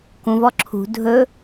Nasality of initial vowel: nasal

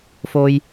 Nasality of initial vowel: oral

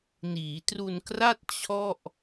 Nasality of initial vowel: oral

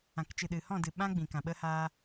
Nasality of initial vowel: nasal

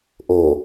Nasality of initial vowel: oral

